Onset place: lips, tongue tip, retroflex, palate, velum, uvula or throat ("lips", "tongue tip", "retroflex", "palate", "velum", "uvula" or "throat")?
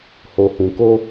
throat